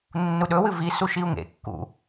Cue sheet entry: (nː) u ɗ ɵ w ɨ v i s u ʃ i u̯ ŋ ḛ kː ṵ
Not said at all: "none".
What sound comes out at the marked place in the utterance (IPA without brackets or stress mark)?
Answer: nː